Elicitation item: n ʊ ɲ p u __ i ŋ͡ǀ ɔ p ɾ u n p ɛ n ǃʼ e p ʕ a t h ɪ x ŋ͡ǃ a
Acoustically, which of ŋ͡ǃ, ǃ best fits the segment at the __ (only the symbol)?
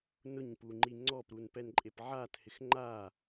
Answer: ŋ͡ǃ